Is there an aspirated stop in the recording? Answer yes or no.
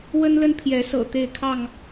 yes